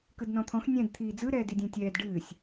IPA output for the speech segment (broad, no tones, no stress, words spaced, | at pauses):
kɯdnɔ̃t̪ʰɔ̃x nʲɛ̃d t̪ʰiːd͡zɯ ɾɛːdidʲɛ̃tʲɛːd ɖɨːsʲ